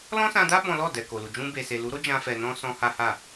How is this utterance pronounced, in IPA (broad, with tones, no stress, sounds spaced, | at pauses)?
l ɔ̃˦ s ã˧ d a˦ b ɔ̃˦ l ɔ˦˨ d ɛ˨ k o˨ l u˨ d͡ʒ ũ˧ b e˨ s e˨ l u˨˦ ɾ o˦ d͡ʒ ã˦ f ɛ˧ n ɔ̃˦ s ɔ̃˦ h a˦ h a˦˨